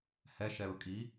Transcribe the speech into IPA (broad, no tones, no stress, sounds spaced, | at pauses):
h ɛ ʃ ɛ ɹ kʼ i